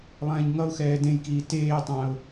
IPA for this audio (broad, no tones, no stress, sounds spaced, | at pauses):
lˠ ɛ̃ː ɲ ŋ ʌ ʊ̯ x ɛː d ẽ j k iː t eː tˤ ã ʊ̯